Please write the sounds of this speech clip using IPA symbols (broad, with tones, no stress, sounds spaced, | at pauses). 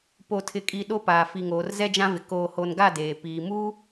p o˨ tʰ ɪ˨ kʼ i˨ ɗ o˦ p aː˨ f i˨ ŋ oː˨ r z ɛ˦ d͡ʒ ã˦ v ɪ˨ k oː˨ h o˨ n ɡ a˦˨ d eː˨ p iː˨ m uː˦